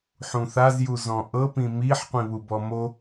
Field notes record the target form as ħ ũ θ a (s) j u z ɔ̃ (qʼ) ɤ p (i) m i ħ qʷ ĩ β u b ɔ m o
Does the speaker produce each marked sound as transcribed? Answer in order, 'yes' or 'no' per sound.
no, no, no

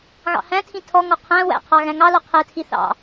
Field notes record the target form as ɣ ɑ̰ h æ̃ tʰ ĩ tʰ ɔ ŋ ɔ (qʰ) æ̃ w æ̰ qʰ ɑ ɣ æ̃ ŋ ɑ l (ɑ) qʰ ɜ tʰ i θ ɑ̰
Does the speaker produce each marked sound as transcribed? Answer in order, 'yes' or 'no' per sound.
yes, no

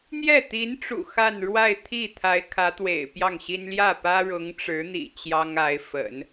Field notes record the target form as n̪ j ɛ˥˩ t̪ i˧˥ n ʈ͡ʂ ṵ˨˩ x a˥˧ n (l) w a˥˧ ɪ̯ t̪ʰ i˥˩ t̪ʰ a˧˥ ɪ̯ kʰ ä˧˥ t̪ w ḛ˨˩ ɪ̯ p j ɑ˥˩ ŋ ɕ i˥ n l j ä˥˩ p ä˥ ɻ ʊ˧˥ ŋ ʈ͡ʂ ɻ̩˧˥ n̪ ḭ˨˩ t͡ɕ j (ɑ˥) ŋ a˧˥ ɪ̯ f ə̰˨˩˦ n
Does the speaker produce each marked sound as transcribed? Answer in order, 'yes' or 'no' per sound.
no, yes

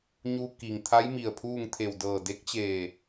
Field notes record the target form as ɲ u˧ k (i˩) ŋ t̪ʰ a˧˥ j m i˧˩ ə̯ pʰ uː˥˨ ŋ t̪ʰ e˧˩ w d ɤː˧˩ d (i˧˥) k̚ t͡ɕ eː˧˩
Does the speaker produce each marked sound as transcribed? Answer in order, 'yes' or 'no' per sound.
yes, no

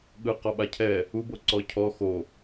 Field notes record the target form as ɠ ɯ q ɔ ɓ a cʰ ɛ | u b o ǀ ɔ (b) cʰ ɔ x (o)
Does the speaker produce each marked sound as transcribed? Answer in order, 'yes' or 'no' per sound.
no, yes

